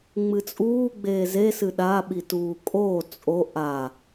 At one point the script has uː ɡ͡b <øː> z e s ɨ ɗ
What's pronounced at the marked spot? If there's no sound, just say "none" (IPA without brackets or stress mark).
eː